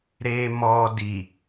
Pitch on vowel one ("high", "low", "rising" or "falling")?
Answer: low